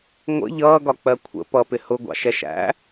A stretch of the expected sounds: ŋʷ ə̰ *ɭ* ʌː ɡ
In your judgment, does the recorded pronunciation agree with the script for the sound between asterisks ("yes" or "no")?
no